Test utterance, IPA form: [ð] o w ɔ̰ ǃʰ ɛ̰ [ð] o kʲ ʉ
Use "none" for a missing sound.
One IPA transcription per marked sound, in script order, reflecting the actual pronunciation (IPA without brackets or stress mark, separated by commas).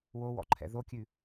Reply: w, ð